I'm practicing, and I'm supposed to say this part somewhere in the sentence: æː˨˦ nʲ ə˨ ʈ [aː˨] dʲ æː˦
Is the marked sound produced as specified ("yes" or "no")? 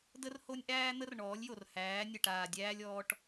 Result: yes